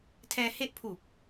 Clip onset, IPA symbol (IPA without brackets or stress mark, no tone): tʰ